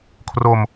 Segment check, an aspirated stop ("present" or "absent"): present